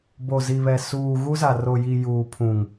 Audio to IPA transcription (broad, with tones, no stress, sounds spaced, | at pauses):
b o˨ z i˨ β ɛ˨ s uː˨ ɣ u˦ z a˨ r o˨ j i˨ j uː˨ pʰ ũ˨ ŋ